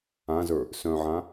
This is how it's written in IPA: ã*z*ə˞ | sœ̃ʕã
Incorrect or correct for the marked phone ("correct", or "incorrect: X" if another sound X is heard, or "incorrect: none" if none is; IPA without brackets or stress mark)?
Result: correct